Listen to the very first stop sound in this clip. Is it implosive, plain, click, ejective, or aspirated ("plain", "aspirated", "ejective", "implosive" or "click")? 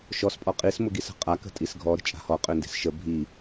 ejective